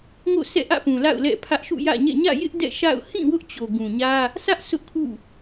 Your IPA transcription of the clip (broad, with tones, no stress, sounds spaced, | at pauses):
ŋ o̰˦˨ s ɛ̰˦˨ ʔ ä̰˦˨ p ũ˨ l a̰˦˨ ʊ̯ l ɛ̰˦˨ pʰ ä˦ ʔ ʃ ṵ˦˨ j ä̰˦˨ ɲ ɛ̰˦˨ ɲ ä̰˦˨ j ɪ˦ ʔ d ɛ̰˦˨ ʃ a̰˦˨ ʊ̯ h ĩ˦˨ w ʊ˦ ʔ t͡ɕ o˨ ɡ ũ˨ ɲ ä˦ | sʰ ä˦ ʔ sʰ ʊ˦ ʔ kʰ ṵ˦˨